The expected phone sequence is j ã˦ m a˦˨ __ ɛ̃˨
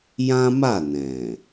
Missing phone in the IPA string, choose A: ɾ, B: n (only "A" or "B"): B